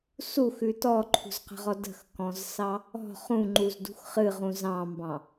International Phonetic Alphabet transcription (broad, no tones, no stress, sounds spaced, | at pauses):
s u x ʉ t ɔ ǃʰ ṳ z q ə̤ ʁ ɔ d ə̤ x k ɔ̃ z s ɑ | ɔ̤ χ ũ ŋ͡ǃ u z d ṳ x χ ɨ ʁ ũ z ɑ̃ m b ɑ̃